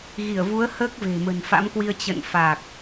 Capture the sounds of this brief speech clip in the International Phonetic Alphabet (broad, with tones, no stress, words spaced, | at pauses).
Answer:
ɣi˧˩ə̯vu˨˦ə̯ həː˦˥k̚ve̤˨˩ mə̤˨˩nfa̰˧˥mkwi˧ə̯ t͡ɕə̰˧˨nfa˨˩k̚